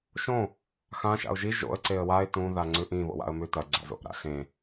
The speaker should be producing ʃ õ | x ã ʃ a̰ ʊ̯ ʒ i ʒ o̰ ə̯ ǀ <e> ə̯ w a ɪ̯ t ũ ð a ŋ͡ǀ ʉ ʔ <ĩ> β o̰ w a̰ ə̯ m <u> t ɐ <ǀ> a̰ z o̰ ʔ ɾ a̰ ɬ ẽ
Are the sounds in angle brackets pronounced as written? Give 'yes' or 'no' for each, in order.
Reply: yes, yes, no, no

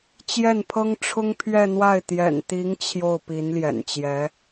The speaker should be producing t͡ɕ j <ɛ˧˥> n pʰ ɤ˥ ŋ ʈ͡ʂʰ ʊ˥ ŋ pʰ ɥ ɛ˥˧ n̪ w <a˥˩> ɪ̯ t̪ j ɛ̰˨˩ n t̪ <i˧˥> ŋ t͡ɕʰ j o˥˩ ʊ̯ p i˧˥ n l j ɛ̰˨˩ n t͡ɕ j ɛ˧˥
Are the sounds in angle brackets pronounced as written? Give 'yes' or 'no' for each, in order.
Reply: no, yes, yes

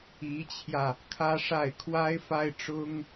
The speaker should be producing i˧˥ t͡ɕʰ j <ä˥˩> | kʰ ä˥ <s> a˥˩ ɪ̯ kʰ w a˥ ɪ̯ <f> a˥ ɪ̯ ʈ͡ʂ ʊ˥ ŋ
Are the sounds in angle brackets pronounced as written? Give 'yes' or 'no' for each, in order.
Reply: no, no, yes

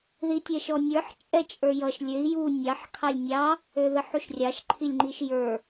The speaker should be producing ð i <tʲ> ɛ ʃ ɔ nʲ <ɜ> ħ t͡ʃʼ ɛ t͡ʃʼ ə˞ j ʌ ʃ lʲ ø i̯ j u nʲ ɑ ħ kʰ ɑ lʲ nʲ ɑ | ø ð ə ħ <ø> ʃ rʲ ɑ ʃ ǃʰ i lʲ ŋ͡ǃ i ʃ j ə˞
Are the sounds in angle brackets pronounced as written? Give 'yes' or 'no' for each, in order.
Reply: yes, no, no

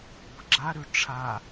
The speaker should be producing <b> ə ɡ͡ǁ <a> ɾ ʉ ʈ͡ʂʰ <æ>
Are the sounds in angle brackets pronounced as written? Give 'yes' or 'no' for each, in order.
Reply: yes, yes, no

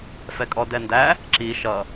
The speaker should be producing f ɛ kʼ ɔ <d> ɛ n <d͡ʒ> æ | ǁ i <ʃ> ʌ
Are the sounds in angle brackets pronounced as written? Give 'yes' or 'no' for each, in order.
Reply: yes, no, yes

